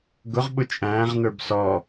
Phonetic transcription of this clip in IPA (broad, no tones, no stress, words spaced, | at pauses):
ɡʊʁɓʊ t͡ʃʼæ̃ːʁnə˞b sɔ